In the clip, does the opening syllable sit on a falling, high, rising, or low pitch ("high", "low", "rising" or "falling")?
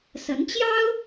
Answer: rising